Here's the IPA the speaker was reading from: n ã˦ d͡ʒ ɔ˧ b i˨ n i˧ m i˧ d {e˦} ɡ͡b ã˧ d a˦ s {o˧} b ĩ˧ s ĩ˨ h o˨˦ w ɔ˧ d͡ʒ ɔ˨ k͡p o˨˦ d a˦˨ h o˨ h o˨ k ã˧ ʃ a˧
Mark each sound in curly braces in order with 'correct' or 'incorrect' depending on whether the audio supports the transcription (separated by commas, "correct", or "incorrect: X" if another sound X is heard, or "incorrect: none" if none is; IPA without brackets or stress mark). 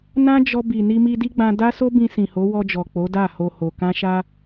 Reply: incorrect: i˦, incorrect: o˦